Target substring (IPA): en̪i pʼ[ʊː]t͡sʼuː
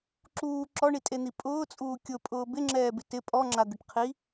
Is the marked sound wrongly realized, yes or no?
no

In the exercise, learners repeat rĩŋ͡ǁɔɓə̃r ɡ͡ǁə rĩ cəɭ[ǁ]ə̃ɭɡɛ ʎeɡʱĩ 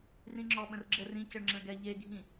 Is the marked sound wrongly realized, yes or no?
yes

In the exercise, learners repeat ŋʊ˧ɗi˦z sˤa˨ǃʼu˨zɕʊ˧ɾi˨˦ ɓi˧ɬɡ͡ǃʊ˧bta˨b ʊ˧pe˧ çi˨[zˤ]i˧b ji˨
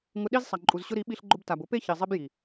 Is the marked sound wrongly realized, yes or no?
no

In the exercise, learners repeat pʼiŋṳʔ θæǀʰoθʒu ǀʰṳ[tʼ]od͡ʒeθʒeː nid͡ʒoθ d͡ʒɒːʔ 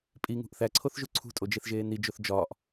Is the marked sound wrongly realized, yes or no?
no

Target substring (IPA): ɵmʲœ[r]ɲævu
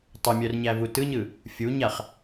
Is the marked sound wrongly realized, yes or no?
no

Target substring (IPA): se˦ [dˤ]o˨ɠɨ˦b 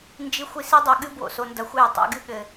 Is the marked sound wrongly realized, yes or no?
no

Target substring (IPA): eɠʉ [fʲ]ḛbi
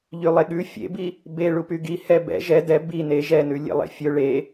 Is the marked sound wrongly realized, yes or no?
no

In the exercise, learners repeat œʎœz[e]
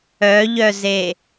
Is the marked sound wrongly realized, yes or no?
no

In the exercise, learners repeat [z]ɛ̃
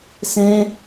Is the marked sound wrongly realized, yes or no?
yes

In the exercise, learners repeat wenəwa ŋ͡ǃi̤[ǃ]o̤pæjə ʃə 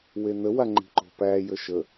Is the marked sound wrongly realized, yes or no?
no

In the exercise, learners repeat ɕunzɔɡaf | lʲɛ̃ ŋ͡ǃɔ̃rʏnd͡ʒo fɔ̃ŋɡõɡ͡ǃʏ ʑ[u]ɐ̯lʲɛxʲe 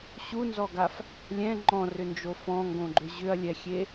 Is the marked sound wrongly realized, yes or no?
yes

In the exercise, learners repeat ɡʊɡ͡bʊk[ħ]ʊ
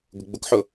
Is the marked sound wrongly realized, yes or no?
no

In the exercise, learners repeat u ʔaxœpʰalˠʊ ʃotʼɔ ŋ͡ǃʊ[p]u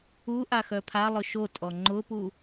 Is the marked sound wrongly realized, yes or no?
no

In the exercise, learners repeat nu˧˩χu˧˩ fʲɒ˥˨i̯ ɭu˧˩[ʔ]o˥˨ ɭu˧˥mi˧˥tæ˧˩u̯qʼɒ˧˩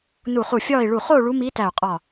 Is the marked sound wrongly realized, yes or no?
yes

